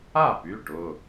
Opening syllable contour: falling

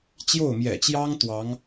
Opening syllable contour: falling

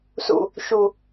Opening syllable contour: low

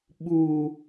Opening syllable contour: low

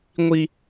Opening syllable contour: high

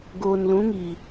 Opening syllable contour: low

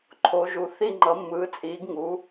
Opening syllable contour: rising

